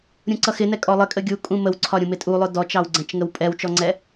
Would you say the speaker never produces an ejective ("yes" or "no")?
no